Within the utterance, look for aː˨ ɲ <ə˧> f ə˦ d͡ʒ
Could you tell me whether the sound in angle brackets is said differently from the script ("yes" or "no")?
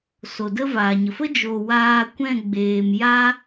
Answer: yes